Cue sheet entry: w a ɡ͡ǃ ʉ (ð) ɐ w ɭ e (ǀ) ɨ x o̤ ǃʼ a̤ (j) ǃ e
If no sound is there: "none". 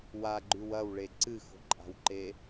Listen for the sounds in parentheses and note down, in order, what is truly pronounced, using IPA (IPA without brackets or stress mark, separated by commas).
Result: w, ǀ, w